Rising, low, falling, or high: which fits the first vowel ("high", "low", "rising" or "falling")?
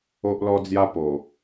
high